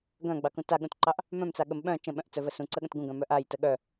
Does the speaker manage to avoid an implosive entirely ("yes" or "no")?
no